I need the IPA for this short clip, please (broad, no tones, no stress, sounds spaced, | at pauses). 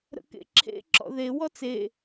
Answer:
ɾ ə̰ k ḛ ǁʰ ḛ ǁ ɔ̰ ð e w ɔ t͡s e